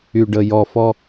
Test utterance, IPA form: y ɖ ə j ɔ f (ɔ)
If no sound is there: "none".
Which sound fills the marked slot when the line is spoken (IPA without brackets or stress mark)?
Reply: ɔ